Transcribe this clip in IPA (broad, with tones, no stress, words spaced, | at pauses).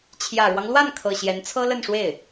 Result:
t͡ɕʰjä˨˩ɻwɑ˦ŋlwa˥˩nkʰɤ˨˩ ɕjɛ˧˥nt͡sʰɤ˥lə˥˧nʂwe˥˩ɪ̯